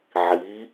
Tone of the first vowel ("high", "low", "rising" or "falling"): rising